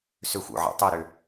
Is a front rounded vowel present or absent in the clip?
present